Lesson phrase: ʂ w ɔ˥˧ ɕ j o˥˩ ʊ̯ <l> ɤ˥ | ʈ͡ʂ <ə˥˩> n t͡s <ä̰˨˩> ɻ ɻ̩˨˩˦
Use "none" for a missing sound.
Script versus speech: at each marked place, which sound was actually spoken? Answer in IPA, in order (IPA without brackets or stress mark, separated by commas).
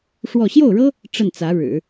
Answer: ɻ, ə˥˩, ä˧˥